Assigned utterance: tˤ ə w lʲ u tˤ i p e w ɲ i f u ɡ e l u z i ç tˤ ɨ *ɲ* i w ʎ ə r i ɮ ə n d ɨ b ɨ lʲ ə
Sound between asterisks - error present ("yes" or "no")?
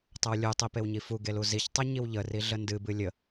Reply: no